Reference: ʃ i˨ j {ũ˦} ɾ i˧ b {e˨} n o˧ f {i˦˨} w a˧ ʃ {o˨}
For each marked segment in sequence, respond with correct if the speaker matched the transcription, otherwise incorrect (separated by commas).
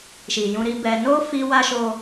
incorrect, incorrect, incorrect, incorrect